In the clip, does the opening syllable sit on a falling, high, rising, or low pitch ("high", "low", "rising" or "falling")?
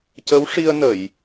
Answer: rising